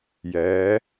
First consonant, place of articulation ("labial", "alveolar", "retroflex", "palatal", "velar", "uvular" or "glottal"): palatal